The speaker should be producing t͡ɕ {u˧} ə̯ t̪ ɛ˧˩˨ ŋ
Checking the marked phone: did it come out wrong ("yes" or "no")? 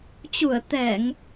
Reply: yes